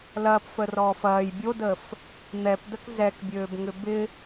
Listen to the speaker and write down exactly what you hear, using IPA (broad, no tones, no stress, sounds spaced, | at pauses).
l ɐː p f ə r ɔː f ɐː j bʲ o d əː f | n̪ ɛ p d ə k z ɛ k bʲ øː b ŋ ʏ b ɪ